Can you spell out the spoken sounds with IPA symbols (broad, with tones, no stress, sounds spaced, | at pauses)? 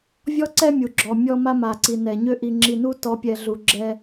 vʲ ɔ˦ ǀ ɛ˦ mʲ u˨ ɡ͡ǁ ɔ˨ mʲ ɔ˦ m a˦ m a˨ ǀ i˨ n ɛ˨ ɲ ø˦ ʔ i˨ ŋ͡ǁ i˨ n u˦ t ɔ˨˦ pʲ ɛ˨ ɮ u˨ ɡ͡ǁ ɛ˦